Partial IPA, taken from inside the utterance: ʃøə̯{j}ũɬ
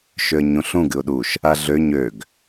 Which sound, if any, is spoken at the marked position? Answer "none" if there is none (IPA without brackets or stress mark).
ɲ